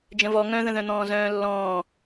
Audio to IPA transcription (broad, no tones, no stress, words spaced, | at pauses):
d͡ʒə̃vɔ ŋœ̃ðə̃ðœ̃n̪ɔ̃ː zœ̃ːlːɔ̃ː